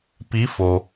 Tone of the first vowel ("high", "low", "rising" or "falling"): rising